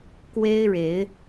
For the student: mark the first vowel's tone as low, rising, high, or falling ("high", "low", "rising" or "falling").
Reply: high